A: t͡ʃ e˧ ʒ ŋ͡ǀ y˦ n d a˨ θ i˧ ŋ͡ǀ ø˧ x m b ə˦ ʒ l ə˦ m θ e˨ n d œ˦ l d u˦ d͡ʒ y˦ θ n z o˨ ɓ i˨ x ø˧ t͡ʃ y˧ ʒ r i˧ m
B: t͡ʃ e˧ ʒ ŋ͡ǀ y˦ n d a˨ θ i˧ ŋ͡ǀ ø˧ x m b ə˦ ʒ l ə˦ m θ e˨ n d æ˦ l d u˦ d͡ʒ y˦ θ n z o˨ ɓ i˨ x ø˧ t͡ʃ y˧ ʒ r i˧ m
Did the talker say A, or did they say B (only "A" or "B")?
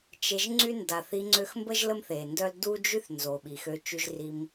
A